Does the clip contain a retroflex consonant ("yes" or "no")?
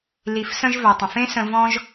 no